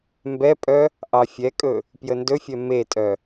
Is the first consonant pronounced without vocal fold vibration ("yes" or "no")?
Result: no